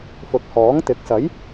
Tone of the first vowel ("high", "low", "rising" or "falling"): low